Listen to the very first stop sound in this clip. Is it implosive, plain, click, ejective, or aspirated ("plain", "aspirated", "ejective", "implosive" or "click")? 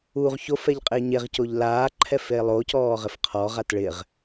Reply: ejective